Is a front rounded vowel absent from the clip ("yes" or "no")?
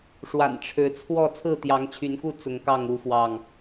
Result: no